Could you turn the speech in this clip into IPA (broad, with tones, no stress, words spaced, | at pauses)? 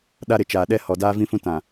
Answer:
ɗa˦ɾɪ˨ t͡ʃaː˨ɗɛ˦ hɔ˨daː˦vĩ˦fũ˦ tã˨